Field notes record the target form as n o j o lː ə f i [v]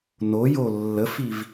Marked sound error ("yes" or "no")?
no